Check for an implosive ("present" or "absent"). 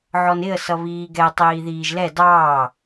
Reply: absent